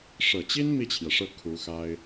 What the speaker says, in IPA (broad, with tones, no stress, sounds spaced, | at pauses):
ʂ ɤ˨˩ t͡ɕ i˥ n m i˥˩ t͡ɕʰ j ɛ˩ ʂ ɤ˥˩ kʰ u˧˥ x a˥ ɪ̯